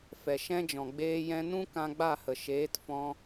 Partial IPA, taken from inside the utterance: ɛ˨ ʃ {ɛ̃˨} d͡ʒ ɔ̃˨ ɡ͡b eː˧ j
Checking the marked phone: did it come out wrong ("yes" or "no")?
yes